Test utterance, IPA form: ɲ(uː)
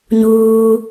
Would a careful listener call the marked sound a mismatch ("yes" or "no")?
no